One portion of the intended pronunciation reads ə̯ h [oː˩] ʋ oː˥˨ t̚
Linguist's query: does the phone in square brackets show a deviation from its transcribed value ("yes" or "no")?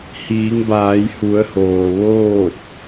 no